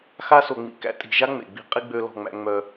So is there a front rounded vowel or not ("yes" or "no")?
yes